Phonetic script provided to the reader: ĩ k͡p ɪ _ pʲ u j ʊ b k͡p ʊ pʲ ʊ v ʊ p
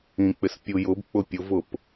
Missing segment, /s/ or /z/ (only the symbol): s